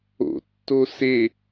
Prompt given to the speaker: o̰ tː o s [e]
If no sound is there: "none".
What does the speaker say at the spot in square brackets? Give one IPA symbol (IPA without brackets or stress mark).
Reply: e